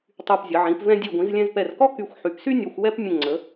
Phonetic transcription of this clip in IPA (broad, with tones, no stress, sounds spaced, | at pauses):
tˤ y˧˩ p zʲ ə˩˧ ʕ ĩ˩˧ p v ɛ̃˧ dʲ e˧˩ ɡʷ ĩ˩˧ z lʲ ɛ̃˧ z p ɛ˧˩ r k ɔ˥ k y˧˩ xʷ ħ y˩˧ p s y˥ nʲ ɔ˧ xʷ w ɛ˥ p mʲ ə̃˧˩ ŋ͡ǀ ə˩˧